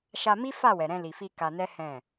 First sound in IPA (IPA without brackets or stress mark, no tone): ʃ